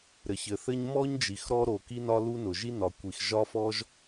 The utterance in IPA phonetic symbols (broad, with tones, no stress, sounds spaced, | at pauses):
ɾ ɘ˩ ç ɘ˩ θ ɘ˥ ɲ m ɔ˥ ɲ d͡ʒ i˩ x ɾ ɔ˥ ɾ o˩ k i˥ n ɒ˥ l u˥ n ʊ˩ ʒ i˥ n ɒ˩ kʷ i˩ x ʒ ɒ˥ f ɔ˥ ʒ